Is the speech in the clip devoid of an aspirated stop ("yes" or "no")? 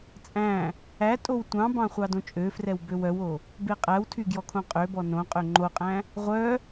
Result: no